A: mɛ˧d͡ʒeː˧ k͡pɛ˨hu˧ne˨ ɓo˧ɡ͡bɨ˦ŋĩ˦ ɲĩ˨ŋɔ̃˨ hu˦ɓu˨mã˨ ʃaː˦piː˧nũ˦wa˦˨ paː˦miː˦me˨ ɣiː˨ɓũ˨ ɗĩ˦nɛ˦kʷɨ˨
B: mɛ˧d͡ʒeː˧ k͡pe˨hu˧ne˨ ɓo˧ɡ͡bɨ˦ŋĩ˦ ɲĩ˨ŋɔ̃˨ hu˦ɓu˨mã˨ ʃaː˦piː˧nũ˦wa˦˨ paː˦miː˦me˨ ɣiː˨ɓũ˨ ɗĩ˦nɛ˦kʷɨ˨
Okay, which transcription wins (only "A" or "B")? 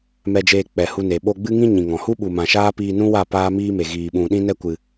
A